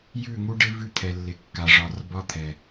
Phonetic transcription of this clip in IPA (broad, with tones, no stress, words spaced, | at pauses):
jʉ˦˨ŋu˦ɖɪ˦ vʉ˦t̪ʰɛ˨lːɪ˨kːa˨ ʐɒ˨rbɒ˦t̪ʰɛ˨